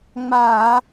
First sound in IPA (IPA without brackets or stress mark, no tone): ŋ͡m